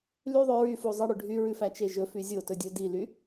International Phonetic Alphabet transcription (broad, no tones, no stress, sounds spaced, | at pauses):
l y ðˤ ø ɹ y f u zˤ ɑ ɽ ø ɖʱ y ɹ ʉ f æ t͡ʃ e ʒ ɵ f y zʲ o t ɵ dʲ ɵ d i l y